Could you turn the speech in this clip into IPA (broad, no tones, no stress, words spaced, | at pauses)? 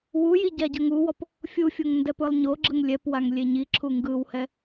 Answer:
wuji ɟaɟɤŋuwɔp | fʲufʲoŋ ndɛpɯlˠɲoɡ͡ǁɯŋ lʲɛpwaŋ lʲeɲiǁʰu ŋɡɯwhɛ